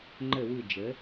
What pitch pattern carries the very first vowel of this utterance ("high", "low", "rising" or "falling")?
low